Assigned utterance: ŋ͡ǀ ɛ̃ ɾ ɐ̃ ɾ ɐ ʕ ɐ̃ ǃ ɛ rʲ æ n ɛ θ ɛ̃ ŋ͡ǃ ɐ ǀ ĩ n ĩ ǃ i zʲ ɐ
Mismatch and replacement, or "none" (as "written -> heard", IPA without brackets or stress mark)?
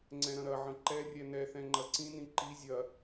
æ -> ɛ